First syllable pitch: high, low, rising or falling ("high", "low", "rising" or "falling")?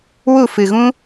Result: falling